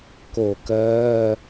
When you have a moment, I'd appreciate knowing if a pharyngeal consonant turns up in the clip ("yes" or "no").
no